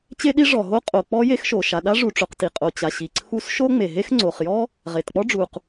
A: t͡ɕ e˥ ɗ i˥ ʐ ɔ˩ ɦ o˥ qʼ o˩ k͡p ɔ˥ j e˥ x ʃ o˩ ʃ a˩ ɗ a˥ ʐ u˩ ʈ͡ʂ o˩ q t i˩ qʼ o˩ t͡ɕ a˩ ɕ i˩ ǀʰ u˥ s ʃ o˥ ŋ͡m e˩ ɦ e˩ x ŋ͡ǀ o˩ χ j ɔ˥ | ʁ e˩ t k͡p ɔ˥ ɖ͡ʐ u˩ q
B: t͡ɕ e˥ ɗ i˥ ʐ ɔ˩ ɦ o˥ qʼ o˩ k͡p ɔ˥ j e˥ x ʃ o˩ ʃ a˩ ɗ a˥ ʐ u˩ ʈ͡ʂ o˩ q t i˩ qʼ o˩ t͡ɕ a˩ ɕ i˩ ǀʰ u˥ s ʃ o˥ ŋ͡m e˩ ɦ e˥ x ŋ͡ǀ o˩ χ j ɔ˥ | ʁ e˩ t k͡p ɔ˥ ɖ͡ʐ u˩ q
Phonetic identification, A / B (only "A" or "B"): B